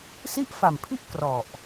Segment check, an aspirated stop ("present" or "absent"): present